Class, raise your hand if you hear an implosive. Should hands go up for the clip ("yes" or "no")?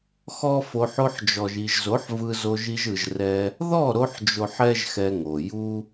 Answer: no